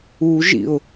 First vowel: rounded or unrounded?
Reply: rounded